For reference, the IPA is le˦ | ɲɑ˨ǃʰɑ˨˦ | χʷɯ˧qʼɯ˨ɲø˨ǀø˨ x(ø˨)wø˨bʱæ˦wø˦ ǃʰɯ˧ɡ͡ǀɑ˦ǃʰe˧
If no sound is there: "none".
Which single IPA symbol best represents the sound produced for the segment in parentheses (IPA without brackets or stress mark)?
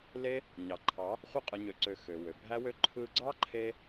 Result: ø˨